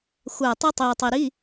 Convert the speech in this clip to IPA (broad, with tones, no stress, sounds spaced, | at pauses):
xʷ æ˦˨ tˤ i˥ tˤ iː˨ tˤ i˨ ɾ i˧˥˧